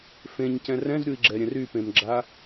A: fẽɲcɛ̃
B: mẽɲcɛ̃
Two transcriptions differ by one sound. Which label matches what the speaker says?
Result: A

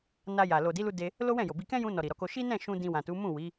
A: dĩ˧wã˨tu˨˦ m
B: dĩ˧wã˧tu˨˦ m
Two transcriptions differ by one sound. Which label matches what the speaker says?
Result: A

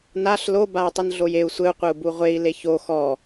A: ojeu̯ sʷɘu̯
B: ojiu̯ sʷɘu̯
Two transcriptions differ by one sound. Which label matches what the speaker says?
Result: A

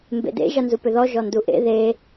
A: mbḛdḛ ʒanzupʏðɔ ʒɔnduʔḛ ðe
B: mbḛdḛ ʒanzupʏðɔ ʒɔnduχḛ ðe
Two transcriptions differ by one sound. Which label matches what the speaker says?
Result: A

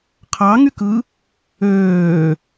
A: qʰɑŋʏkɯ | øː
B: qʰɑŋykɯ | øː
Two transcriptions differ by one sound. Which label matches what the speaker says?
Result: B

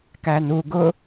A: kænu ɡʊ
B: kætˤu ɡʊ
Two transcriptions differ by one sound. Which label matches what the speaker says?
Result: A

